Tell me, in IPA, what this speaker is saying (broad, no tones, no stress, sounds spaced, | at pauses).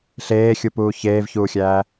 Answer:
ɬ eː xʲ u p uː ç eː v ç uː xʲ æː